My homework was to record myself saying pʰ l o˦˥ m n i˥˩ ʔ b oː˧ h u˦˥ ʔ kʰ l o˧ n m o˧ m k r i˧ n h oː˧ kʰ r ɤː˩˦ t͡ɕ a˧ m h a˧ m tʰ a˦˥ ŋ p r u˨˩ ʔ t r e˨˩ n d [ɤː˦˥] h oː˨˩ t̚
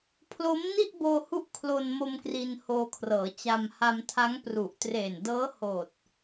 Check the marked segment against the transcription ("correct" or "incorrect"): correct